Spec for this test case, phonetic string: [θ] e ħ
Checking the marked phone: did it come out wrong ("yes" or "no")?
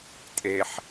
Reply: yes